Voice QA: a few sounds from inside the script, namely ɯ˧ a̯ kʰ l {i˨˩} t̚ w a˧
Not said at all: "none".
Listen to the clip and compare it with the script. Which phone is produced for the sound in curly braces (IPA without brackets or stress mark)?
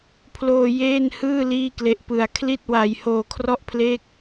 i˥˩